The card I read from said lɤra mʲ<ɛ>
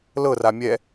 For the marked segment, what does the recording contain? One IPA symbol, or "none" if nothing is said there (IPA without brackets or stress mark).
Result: ɛ